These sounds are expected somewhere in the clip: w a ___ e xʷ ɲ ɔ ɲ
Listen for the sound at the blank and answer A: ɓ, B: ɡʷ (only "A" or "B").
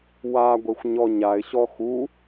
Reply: B